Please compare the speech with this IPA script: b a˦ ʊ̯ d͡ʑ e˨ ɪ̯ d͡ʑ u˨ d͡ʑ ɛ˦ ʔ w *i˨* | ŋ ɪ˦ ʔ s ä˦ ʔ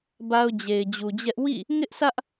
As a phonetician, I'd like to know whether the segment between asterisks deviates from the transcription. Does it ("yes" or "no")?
yes